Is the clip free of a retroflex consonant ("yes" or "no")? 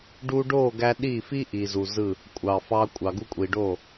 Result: no